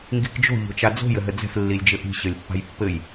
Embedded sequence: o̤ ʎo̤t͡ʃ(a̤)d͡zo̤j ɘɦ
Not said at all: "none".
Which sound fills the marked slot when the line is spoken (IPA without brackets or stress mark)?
a